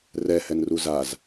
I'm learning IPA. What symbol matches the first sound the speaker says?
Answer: r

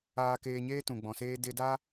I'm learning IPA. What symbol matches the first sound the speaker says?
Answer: aː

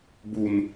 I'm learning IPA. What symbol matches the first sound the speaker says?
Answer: b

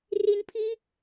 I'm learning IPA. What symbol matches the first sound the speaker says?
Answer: r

